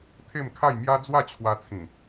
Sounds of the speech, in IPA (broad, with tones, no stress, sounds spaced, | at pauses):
t̪ʰ e˥˧ m kʰ a˥˧ j m j a˦ d͡z w a˥˧ t͡ɕʰ w a˧ t͡sʰ ĩ˨˩